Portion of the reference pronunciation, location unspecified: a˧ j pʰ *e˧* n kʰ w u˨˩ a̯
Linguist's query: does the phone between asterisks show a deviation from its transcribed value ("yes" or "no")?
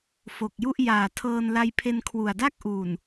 no